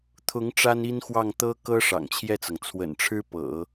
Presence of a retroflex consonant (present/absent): present